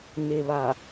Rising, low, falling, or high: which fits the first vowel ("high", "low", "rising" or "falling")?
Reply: low